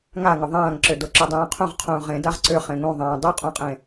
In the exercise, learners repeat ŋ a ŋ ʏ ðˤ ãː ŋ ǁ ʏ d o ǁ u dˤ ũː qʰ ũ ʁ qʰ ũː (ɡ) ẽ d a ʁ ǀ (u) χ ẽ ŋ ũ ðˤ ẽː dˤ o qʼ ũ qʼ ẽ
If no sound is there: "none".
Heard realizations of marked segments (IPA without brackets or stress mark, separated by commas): ʁ, ʏ